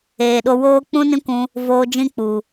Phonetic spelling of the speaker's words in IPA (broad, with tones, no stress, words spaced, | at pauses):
eː˨ɗo˧woː˦ k͡pũ˦nĩ˦kʷũ˧ | voː˧d͡ʒĩ˦k͡pu˨